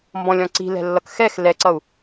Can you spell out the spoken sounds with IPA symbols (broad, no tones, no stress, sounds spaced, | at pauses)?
m b ɔ̃ lʲ ɔ̃ ǀ i̤ l ɛ̤ lː ʌ k x ɛ x l ɛ ǀ ʌ u̯